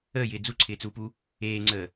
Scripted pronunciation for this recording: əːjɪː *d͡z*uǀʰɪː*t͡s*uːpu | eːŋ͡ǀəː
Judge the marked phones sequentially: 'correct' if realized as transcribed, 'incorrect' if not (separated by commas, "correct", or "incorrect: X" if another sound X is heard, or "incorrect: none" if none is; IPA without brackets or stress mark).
correct, correct